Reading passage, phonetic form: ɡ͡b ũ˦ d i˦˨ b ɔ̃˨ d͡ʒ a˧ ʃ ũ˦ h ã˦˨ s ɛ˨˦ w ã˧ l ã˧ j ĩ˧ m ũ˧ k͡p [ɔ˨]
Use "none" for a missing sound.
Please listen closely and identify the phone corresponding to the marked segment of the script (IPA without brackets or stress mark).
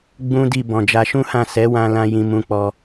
ɔ˧